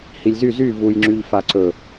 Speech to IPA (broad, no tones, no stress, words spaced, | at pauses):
hilʲzy zy vujŋ͡ǁyʎfa ǀɵ